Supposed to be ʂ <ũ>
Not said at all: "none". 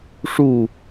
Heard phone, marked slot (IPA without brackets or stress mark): u